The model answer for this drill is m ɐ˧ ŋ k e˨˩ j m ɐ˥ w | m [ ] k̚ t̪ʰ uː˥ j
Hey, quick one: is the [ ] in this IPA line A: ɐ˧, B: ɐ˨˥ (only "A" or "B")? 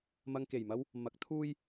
B